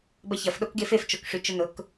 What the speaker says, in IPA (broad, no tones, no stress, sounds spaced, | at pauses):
b ɐ ç ɐ f ɗ o k ɡ e f e f t͡ʃ o k ʂ y t͡ʃ ʊ n ʊ k